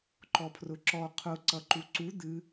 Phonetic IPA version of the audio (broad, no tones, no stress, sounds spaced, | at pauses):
ǃ ɔ pʰ r ʊ ǁ ɔ qʰ ʊ ǀ ʌ ǃ u ǀ u d̪ ɨ